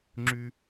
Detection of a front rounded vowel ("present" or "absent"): present